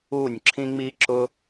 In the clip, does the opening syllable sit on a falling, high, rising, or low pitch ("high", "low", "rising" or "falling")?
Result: falling